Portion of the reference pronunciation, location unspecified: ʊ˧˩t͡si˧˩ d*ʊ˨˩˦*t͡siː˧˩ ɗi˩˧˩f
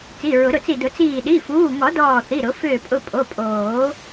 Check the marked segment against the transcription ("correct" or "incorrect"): correct